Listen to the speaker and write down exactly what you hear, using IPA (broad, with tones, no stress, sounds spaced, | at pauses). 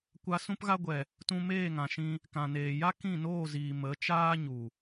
kʷ a˧ s ũ˧ p ɣ a˧ ɡʷ ɛ˨ | t ũ˧ m eː˦˨ ŋ ã˨ ʃ ĩ˧ | k ã˨ n eː˨ j a˦ k ĩ˦˨ n oː˦˨ z iː˨ m ə˨˦ t͡ʃ aː˦ ɲ u˨